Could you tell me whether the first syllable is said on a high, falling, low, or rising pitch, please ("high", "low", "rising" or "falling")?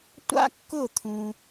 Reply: high